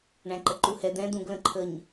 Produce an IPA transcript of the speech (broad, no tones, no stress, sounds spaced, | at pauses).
ɳ æ̃ ǃ ə ǃ u h ɛ d̪ ɛ̃ d̪ ũ ɡ l ə̃ ǃʰ ə ɲ